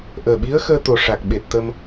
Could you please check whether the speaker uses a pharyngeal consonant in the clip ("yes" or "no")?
no